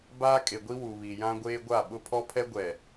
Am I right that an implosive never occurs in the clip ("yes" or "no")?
no